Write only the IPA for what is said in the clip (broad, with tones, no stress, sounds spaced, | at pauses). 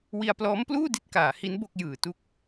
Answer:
w i˧ a̯ p l ɔː˦˥ m p l uː˥˩ d i˥˩ t̚ k aː˩˦ h i˦˥ n b o˥˩ k̚ j ɯː˨˩ t u˥˩ k̚